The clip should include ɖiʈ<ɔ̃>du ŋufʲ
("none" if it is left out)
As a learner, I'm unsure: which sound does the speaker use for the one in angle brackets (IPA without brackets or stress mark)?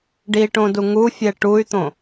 õ